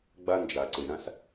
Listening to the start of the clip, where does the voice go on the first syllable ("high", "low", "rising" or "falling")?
high